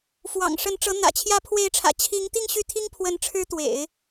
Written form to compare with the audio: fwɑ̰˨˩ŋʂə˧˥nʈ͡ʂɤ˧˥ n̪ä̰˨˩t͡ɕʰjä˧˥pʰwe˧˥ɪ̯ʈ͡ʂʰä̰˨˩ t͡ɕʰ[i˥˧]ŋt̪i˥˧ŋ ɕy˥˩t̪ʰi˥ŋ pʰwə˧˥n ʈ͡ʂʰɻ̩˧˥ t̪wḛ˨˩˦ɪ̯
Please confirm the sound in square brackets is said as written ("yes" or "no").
no